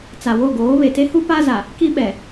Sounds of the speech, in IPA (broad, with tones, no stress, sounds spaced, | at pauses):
t͡s a˨ w o˦˨ ɡ oː˨˦ β e˨ t e˦ h u˦ p a˦ z a˨ | k i˦ ɓ ɛ˨